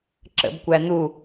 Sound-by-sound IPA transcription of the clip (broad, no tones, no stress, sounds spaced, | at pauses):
ǁ ə̰ b kʷ æ n̪ u